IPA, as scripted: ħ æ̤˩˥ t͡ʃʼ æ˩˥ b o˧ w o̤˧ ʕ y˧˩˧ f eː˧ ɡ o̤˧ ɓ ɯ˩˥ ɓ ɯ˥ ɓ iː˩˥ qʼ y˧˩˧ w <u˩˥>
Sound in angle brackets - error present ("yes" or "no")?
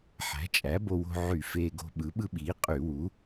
no